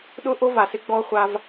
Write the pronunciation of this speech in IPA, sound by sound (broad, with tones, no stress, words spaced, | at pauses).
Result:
ɗʊ˦ʔo˦ va˨sɪ˧ ɡ͡bɔ˧χʷa˧v